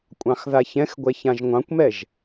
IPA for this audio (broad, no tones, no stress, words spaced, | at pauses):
kʷʼɑ̃xðaçɛ̃xɡʷɛ çãʒŋʷɑ̃kʷmɛʒ